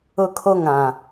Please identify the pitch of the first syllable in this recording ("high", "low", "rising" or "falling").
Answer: high